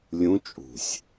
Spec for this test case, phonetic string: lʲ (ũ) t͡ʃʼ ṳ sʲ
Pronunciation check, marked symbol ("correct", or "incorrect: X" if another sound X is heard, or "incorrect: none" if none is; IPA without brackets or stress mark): correct